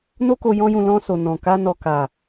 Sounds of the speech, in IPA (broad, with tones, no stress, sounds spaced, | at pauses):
n o˦ k o˧ j ɔ̃˦ j ũ˧ l ɔ̃˧ s o˨ n ɔ̃˨ k a˧ n ɔ˨ k a˨